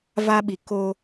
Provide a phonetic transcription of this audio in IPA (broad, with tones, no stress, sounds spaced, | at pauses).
v a˦ ɓ i˨ k o˦